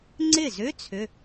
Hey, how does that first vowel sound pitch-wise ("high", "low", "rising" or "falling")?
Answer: falling